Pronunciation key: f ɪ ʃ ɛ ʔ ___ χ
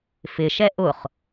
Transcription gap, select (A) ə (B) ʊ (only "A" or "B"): B